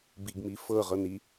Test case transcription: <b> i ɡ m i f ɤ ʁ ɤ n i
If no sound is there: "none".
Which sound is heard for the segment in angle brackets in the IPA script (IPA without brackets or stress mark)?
b